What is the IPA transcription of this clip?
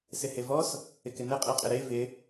sɪhevɔs | ɪkɪnɘ qʼeqʼɪɾe vɪ

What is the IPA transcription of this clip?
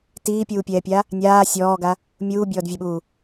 tiːpʲuːpʲɛːpʲa | nʲaː sʲɔːɡa | mʲuːbʲɔːdvʲɜɓuː

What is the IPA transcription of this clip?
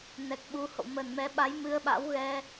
nɛ˨˩k̚ɓu˨˦ho̰˧˨ mə˨˩nmɛ˨˦ ɓa˨˦j mɨ˧ə̯ɓa̰˧˥wɣɛ˧

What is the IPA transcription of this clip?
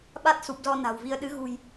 ɓa˦˥t̚su˨˩p̚zɔ˧ na̤˨˩wvi˧ə̯ ɗɨ˨˦ɣṳ˨˩j

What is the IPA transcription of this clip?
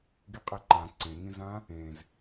ɡiqʼeǃã ǀẽŋĩzã | ẽz

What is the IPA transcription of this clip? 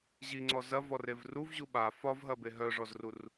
ʑiŋ͡ǀɔ zɐvɔrev ruvʑu ɓa fɒvɦɐbe ɦœʐɔzrur

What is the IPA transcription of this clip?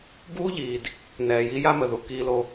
buː˦ ʎiː˨d | nɛː˨ji˦ ja˦mə˨ðu˨ kiː˦lo˦

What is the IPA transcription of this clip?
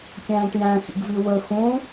kʲæ̃ːʈjæ̃xḭɡvi wə xũ

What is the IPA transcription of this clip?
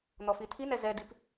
n̪ɔfitʰinɛ zɛdip

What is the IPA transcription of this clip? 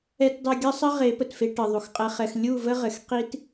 ɛ˦tdˤə˦ ɡʲə˦sˤə˦ ʁe˨˦pə˨tfe˧ ʈɘ˨ ðˤu˨xqʼɛ˧χɛ˧x lʲu˦˨ və˦ʁɘ˨x qi˧t

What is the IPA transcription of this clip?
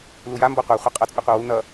luja mbɔqʷa χʷʌqʼʌt͡sʼu qʷʌwu n̪ʌ

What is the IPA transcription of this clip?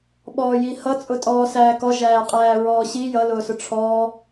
ɓɔːjihʌ t͡sʼʊtʼɔːsæːkɔ ʒæːqʼæːɹɔːɕi jʌ lʊːsʊʈ͡ʂʰɔː

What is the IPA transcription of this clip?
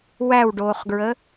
wæwɖoːχɡɹə

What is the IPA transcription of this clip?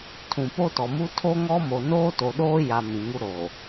tʰũ˨po˦tɔ˨mu˦ tʰo˦ŋɔ˦mo˨ noː˦to˨ɗoː˦ja˨ mĩ˨ŋu˦ɾoː˨

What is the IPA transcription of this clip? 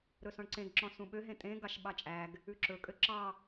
ɾɵsɔ̃ɳǀẽɡ ǁɔ̃sũɓøɦẽ tʼẽ ɡɑʃɓɑt͡ʃʼæɡ | ʉǁɵkʼø ǁɑ

